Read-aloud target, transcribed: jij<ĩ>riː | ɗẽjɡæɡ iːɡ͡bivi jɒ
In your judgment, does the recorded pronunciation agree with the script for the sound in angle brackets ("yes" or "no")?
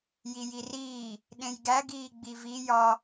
no